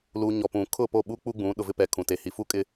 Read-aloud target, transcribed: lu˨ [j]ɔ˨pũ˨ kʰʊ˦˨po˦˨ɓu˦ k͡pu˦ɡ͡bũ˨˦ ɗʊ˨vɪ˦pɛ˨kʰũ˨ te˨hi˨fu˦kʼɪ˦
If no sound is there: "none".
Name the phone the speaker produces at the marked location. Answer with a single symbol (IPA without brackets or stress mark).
ɲ